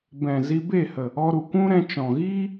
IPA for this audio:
b ɛ̃˨ z i˧ b e˦˨ h ə˨ | ɔ˧ ɾ u˨ kʷ ũ˦ ɾ ɛ̃˧ t͡ʃ ɔ̃˨ ɣ iː˦

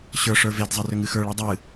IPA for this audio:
ɕ ə˞ ʂ ə˞ v e d zˤ ɐ r ʏ ŋ ɨ x ə˞ ɭ ɨ dˤ ɨ

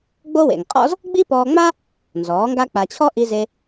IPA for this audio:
ɡ͡b o˦ w ḛ˨ ŋ qʼ ɔ̰˦ z | ɡ͡b i˦ p ɔː˧ ŋ͡m a˦ | n z ɔː˨˦ ŋ ɡ a˦ k͡p a˧ t͡ɕʰ ɔ˦ ʔ i˧ z e˧

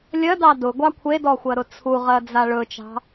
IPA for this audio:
lʲ ɜ d ɑ d ʊ ɡʷ ɑ kʷʰ e d ɔ xʷ ɜ ɾ ʊ t͡sʰ u ʁ ɜ d͡z a ɭ ɵ t͡ʃ ɑ̤

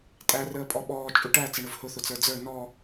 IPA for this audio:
tʼ æ r əː pʼ ɔ ɓ ɔː t͡ʃʼ u ʈ æ t͡s ə ɳ ʊ v h ʊ θ ʊ t͡s ə˞ d͡z ə˞ n ɔ

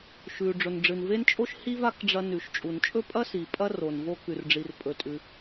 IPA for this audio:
ʃ ʉ˩ ɖ͡ʐ ɵ˩ n ɖ͡ʐ ɨ˩ n v e˥ n t͡ʃʼ o˥ ʃ h i˥ v a˥ k ɖ͡ʐ ɐ˧ n ʉ˩ ʃ t͡ʃʼ u˩ n t͡ʃʼ ɵ˥ pʼ ɐ˥ s i˩ pʼ ɐ˥ r o˩ n v o˧ k ʉ˩ r ɖ͡ʐ i˩ r pʼ ɵ˩ tʼ ʉ˩

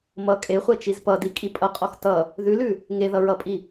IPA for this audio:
m ʌ kʼ e χʷ ɜ t͡ʃ i z p ʌ d i kʼ i pʼ ʌ qʼ ɔ x t ʌ | ð ʉ l ʉ | ŋ e ð ʌ ɹ ʌ pʼ i

